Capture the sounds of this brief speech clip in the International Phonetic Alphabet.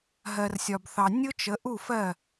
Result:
ɦ ɜ˨ r sʲ ɒ˨ b θ ɑ˨ nʲ ʊ˦ t͡ʃ ə˨˦ ʔ u˦˨ f ɜ˦˨

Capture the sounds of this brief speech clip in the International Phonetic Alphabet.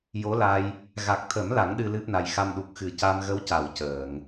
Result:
j o˧˥ l a˧ j | ɣ a˨˩ k̚ t̪ʰ ə˨˩˦ m l a˨˩˦ ŋ ɗ ɨ˧ l ɨ˦˥ p̚ n a˨˩ j x a˧ m ɗ u˨˩ k̚ x ɨ˨˩˦ c a˧ m ɣ ə˧˥ w c a˨˩˨ w c əː˨˩˨ ŋ

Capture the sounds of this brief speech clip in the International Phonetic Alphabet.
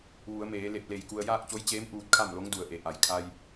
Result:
ʋ u˩˧ ə̯ m eː˩˧ l e˧˩ p̚ l e˧˩ j k u˧ ə̯ j aː˥˨ k̚ t͡ɕ o˧˥ j t͡ɕ eː˧˥ m ʔ uː˧ t̚ kʰ a˥˨ m l o˧˥ ŋ d u˩ ə̯ ʔ e˩˧ ʔ a˩ j kʰ a˧ j

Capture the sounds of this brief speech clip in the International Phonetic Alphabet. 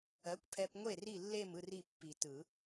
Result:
ɜ˨˥ kʷ pʰ ɛ˧ p ŋʷ e˥˨ r i˥˨ lː e˥˨ m ɯ˥˨ r i˥˨ pː i˨˩˦ t ɯ˨˩˦

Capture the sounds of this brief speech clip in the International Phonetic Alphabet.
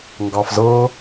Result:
ŋ ɡ ɑ f z ɤ

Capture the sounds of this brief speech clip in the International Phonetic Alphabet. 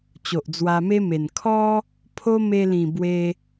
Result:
t͡ɕ o˨ ʔ d͡z w a˧ m e˦ m e˨˩ n kʰ ɔ˦ | pʰ o˦ m e˧ l ĩ˨˩ b w e˧

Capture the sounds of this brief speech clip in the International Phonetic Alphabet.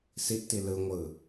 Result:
s i ʔ t i l ɯ ŋʷ ɯ

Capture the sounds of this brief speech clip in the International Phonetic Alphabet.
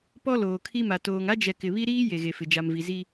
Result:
p ɔ˦ l oː˨ kʰ i˦ m a˨ t oː˨ ŋ a˦ d͡ʒ ɛ˨ k ɪ˨ β i˦ ɾ iː˦ j e˨ ɣ e˨ f ɪ˨ d͡ʒ a˨ m v i˨ z i˦

